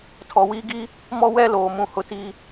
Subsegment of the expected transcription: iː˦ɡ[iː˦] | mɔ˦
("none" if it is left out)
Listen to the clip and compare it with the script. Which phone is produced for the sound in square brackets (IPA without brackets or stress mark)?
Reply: iː˦